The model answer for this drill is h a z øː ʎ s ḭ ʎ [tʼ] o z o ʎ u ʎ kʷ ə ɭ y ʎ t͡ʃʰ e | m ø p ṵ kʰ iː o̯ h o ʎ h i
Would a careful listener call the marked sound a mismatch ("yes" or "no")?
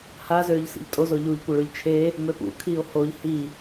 no